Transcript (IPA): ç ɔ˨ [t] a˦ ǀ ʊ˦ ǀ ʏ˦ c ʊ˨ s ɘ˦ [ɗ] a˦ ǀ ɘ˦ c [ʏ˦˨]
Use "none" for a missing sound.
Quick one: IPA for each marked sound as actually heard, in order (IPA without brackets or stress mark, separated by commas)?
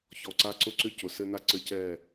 ǀ, n, ɛ˦˨